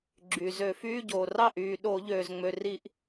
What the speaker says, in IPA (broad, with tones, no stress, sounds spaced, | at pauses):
ɡ͡ǁ y˩ z ø˧˩˧ f yː˧˥˧ ɟ oː˩ r ɑ˥˩ ʔ yː˩ ɗ o˧˩˧ ʎ øː˩ z ŋ͡m ø˩ r i˧˩˧ ʔ